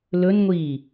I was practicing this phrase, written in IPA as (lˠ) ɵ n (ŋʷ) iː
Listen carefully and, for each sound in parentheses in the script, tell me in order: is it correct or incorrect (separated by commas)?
incorrect, correct